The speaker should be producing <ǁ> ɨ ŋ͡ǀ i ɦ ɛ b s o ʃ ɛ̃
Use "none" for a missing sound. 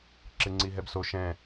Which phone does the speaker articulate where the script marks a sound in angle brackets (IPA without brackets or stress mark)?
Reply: ǁ